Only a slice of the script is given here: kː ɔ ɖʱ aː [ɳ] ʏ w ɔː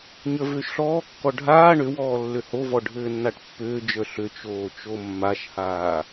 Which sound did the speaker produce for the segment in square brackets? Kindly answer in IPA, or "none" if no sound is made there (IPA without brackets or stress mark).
ɳ